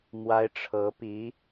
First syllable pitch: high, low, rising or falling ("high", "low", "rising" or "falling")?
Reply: high